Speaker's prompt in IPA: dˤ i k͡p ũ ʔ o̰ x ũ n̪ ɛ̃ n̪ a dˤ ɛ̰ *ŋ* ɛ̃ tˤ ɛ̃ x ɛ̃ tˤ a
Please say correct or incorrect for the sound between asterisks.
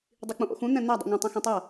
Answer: correct